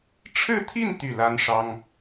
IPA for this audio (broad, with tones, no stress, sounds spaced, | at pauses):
ʈ͡ʂʰ ɻ̩˥˧ t̪ʰ i˥˧ n t̪ y˥˩ l a˥ n ʂ ɑ˥ ŋ